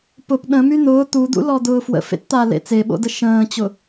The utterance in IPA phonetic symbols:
pʊp ɗə̃my n̪ʊː t̪ud̪ṵlɔd̪ʊː fwə̰fḛtt̪alḛ t͡seɓo̰də ʃə̃ːt͡ɕʊ

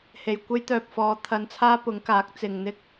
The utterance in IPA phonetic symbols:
he˨˩jkʷe˥jt̪œː˨p̚fɔː˨˧ t̪ʰɐ˧nt͡sʰaː˥pʊ˨˥ŋ kaː˨˥k̚t͡sɪ˨ŋn̪ɪ˥k̚

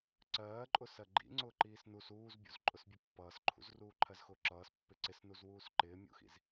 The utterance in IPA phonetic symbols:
ǀɜːǃʼʊsɜ ɡ͡ǃḭ ŋ͡ǀʊːǃiːsnus uːzbʲṵz ǃʼʊsbʲʊpːʌːsǃʰṵz ruːǃʰɜzxʊːǁʌːs pːɪǀɪsnuz wuːsǃɪːmʲṵxḭz

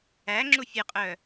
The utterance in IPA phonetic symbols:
æ ŋ͡ǁufʲɘqʼœ

